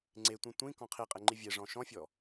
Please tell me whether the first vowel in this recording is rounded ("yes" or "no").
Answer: no